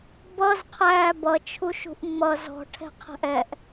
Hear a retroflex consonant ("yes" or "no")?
yes